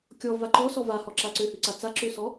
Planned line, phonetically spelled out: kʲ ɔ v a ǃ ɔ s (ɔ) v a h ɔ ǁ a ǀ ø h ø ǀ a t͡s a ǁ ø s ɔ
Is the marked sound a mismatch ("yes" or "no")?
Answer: no